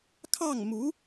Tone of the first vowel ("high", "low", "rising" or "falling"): falling